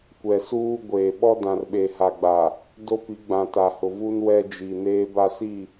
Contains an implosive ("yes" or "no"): yes